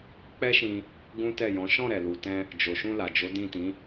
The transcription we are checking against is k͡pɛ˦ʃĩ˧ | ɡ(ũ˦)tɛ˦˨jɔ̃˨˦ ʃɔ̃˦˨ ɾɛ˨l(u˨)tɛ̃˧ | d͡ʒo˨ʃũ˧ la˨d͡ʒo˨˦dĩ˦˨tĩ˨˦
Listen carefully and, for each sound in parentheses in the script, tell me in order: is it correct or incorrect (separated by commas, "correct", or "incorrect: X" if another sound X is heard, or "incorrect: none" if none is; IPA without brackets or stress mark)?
correct, correct